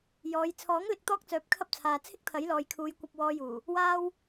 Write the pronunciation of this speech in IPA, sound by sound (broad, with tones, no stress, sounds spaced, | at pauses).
j ɔː˨˧ j t͡sʰ ɔː˨˥ ŋ l ɪ˧ k̚ t̪ ɔː˥ k̚ t͡s œː˨˥ p̚ kʰ ɐ˥ p̚ t͡sʰ aː˨ t͡sʰ ɪ˥ k̚ t̪ʰ ɐ˨˥ j l ɔː˨ j kʰ uː˨˧ j kʷ ɐ˨ p̚ w ɔː˨ j uː˨˩ | w aː˥ w